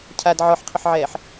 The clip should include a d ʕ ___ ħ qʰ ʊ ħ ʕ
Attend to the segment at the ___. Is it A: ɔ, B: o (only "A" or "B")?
A